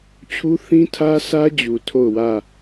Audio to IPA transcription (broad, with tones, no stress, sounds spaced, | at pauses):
t͡ɕʰ u˦ θ ĩ˦ tʰ ä˦ sʰ ä˦ d͡ʑ u˨ tʰ o˦˨ ʊ̯ w ä˦˨